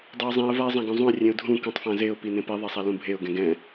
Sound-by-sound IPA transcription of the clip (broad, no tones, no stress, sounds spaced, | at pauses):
dˤ ɘ ɪ̯ zˤ ĩ ə̯ v a ɪ̯ zˤ ã ɡ ũ zˤ ũ ɪ̯ rʲ ẽ ʊ̯ dʱ ũ k ũ tˤ f ã z e ʊ̯ p i n ẽ p i ðˤ ɛ sˤ a l ũ bʱ e ʊ̯ ɡ ɛ̃ ɡ ɛ̃